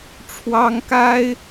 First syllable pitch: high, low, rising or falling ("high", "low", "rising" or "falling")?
high